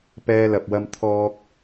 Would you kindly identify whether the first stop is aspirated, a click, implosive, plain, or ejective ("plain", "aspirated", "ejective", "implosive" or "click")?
plain